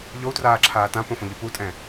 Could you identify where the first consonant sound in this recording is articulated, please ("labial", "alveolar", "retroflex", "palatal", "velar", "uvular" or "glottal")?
palatal